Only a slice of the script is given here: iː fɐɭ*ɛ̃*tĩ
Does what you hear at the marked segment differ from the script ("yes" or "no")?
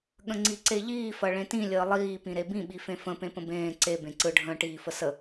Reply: yes